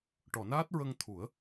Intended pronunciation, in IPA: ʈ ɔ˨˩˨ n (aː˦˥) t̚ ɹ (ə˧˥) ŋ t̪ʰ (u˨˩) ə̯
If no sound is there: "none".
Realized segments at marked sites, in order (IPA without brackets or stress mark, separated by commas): aː˦˥, ə˧, u˨˩˦